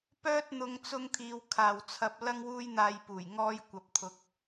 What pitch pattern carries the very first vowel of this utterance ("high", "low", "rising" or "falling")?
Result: high